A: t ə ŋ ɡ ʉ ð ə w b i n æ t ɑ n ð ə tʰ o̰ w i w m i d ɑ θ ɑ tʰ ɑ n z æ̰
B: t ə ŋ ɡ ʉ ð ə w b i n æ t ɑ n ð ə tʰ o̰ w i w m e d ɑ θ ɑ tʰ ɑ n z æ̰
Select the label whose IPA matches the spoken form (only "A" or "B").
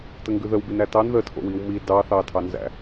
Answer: A